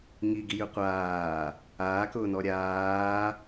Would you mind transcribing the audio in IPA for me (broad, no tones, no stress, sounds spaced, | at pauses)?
ŋ i ɡ i j ʉ qʷ aː | aː k ʊː n ɔ ɾʲ aː